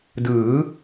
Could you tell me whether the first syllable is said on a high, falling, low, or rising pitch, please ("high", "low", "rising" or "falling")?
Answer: rising